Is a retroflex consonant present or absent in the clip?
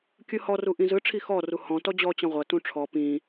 present